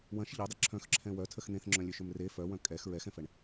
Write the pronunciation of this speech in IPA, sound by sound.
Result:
w ɐ̃ ʃ ʎ ɐ dˤ ə ǁʰ œ̃ x ǁʰ ɛ̃ w œ tʰ ə x n̪ ẽ θ ŋ͡ǁ œ̃ lʲ ø ʃ ʏ m r e f œ w œ̃ kʼ ɛ x ɹ ɛ x ɛ̃ f ɛ ɳ

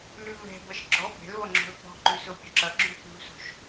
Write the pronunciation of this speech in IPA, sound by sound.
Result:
l ʉ v ɛ̤ b ʌ ʃ ɡ͡ǁ ɔ b ɛ̤ l v ʌ ŋ͡ǁ o̤ l p ɔ̤ ǃ ʉ s o pʲ o ǁ ʌ ɡ͡ǁ ʉ p ʉ v s o̤ ʃ

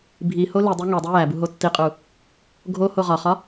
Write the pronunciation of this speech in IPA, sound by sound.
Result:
bʱ i h o l i dˤ i ŋ e dˤ i j æ b u ɦ o tː i qʼ u | ɡʱ o h o ʁ ɒ χ ɒ

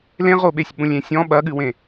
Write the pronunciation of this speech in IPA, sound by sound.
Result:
l ẽ ʁ o ɓ e sʲ ɓ ũ lʲ ẽ sʲ ɔ̃ ɓ ɐ ɠ ɨ w ẽ

